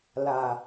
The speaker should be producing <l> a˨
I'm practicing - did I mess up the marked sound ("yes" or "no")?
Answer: no